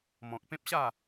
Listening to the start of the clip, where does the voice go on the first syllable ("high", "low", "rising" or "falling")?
low